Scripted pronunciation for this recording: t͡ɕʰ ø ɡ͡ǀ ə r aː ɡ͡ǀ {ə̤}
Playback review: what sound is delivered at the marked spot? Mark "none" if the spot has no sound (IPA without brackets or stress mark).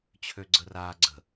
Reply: ə̤